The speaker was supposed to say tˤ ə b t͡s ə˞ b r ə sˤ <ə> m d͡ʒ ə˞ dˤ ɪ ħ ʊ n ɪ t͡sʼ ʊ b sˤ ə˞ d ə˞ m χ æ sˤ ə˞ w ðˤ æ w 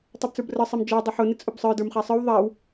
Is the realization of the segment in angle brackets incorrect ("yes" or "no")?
yes